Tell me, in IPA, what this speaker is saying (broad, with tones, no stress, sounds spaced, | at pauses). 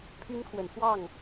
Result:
pʰ y˦ n kʰ w ə˨˦ n x w ɑ˥˨ ŋ